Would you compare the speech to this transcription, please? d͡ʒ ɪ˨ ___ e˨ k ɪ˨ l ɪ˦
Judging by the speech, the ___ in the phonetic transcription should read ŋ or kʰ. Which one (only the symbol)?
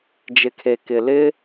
kʰ